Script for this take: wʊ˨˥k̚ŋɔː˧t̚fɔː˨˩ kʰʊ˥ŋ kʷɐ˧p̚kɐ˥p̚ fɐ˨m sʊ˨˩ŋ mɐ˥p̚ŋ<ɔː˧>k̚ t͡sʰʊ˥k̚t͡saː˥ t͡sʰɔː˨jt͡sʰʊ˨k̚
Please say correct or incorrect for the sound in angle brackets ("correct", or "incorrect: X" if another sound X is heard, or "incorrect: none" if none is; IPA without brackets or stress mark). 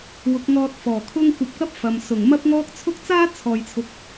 incorrect: ɔː˥